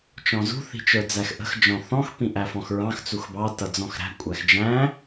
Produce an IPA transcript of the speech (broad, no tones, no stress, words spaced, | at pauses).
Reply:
t͡ʃɔ̃zṳ θi̤t͡ʃə˞d͡zæxʔə̤x d͡ʒɔ̃θɔ̃x pĩʔæfɔ̃xɹɑ̃x t͡suxbɑ tʌd͡zɔ̃xɾæ̤ kʷʼæxd͡ʒæ̃